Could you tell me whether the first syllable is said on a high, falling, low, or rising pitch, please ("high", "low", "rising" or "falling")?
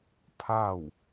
falling